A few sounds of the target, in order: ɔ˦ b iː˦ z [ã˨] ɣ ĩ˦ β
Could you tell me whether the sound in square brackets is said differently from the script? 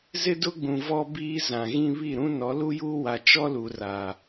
no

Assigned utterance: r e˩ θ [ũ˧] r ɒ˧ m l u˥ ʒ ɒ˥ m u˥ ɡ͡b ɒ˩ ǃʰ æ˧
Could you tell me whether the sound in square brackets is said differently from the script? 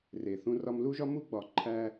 no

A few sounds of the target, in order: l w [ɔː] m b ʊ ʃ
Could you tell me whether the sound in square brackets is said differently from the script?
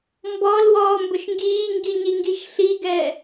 no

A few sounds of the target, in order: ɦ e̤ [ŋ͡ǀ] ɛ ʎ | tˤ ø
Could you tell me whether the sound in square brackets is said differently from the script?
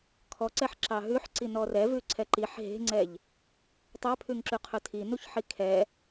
no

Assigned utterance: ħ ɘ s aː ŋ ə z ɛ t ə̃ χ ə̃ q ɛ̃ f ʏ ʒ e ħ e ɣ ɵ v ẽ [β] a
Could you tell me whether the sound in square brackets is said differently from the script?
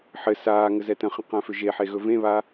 no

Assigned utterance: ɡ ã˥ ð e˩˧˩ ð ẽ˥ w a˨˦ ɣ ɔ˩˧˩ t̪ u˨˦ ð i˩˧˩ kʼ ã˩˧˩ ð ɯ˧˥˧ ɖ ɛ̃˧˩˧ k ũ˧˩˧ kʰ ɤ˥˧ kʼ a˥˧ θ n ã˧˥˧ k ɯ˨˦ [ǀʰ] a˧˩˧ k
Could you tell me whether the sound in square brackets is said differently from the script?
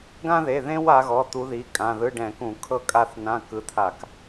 yes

